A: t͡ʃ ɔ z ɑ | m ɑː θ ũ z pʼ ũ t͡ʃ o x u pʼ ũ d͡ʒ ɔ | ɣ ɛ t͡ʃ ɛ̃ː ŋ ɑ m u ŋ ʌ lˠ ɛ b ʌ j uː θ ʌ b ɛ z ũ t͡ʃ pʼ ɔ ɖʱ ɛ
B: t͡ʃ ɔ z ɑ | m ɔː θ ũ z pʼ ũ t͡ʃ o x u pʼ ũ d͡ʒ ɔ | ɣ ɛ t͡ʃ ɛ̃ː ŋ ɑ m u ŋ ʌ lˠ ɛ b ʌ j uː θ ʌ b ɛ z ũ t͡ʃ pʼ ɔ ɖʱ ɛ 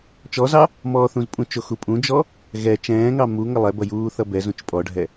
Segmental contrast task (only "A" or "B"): B